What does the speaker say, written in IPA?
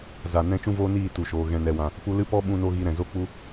za˨nɛ̃˧ t͡ʃũ˦voː˦niː˦˨ tu˨ʃoː˨ ɣɛ̃˨nɛ˨wã˨ | pu˧lɨ˦˨pɔ˦ ɓũ˧no˧ ɣi˧ ɾɛ̃˨zo˧k͡pu˧

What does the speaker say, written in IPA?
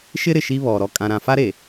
ʃɪ˦ ɾɪ˨ʃi˦ βɔ˨ ɾɔ˦ kʼã˦ɾã˦ fa˦ɾe˨

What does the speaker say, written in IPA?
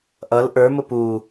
ʔʌl ʔə˞mʊ pu

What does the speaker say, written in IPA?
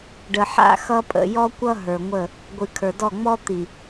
ɖə˨ħa̰˦˨ xʌ˦pʼə̰˨ jɔ˦kʷʌ˦ ɦə˞˨ŋʷə˦˨ | ɡʷɨ˨kʰə˞˨dɔ˦˨ ŋ͡mɔ˦t̪i˨

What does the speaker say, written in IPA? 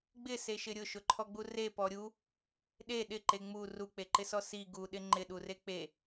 ɡ͡bɪseʃɪ ɾʲʊʃʊǃʰɔɡ͡bu repɔ ɾʲu | ɗe ɗɪǃe ŋ͡mu ruk͡peǃɪsɔ si ɡuɗɪ ŋ͡ǃɪɗure k͡pe

